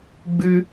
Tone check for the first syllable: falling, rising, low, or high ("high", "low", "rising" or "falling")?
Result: high